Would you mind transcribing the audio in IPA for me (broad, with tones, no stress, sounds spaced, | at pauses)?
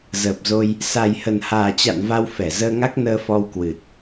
z əː˨˩ p̚ z o˧ j | s a˨˩ j h ə˨˩ n h aː˨˩ t͡ɕ a̰˧˨ n v a˧ w f ɛ˧˩ z əː˧ ŋ a˦˥ k̚ n əː˧ f ɔ˧ w k w ɨ˨˩ t̚